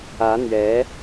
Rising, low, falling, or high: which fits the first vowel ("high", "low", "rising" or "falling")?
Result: rising